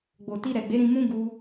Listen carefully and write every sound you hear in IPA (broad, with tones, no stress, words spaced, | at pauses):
ɡ͡bo˨ti˧ɾɛ˨ɡ͡be˨˦ ɾĩ˧mũ˦ ɡu˦